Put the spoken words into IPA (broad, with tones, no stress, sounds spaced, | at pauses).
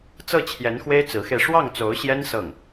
t͡s ɤ˥˩ t͡ɕʰ j ɛ˧˥ n x w e˥ ɪ̯ t͡s ɹ̩˧˥ x e˧ ɪ̯ ʂ w ɑ˥˩ ŋ t͡s o˧˥ ʊ̯ ɕ j ɛ˥ n s ɤ˥˩ ŋ